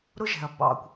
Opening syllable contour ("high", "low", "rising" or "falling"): high